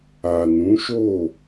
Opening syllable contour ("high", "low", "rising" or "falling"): low